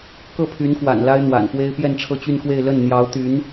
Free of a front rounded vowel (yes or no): no